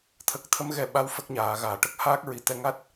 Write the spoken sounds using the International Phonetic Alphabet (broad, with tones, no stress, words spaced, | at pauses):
t̪ʰə˨˩k̚t̪ʰə˧˥m ɣɛ˨˩ɓa˧˥w fə˦˥k̚ɲaː˨˩˨ ɣaː˨˩˨ʈə˦˥k̚haː˦˥k̚ɹi˨˩˨ t̪ɛ˧ŋa˦˥t̚